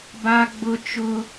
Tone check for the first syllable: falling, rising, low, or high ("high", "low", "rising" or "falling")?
high